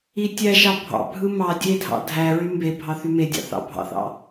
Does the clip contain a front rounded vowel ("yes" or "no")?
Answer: yes